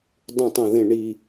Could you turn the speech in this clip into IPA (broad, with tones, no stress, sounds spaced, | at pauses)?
dˤ ũ˧˩ tˤ ɐ̃˧˩ ð ẽ˧˩ ɳ i˧˩